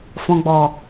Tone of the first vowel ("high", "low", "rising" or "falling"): low